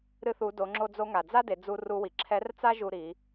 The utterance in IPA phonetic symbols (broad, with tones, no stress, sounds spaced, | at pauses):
ɾ ɨ˧ θ u˩˧ d o˩˧ ŋ͡ǁ o˧ d͡z o˧ ŋ a˩ d͡z a˥ d e˩˧ d͡z u˧ r u˧ w i˩ ǁʰ ɛ˧˥ r t͡s a˥ ʒ u˧ ɾ i˩˧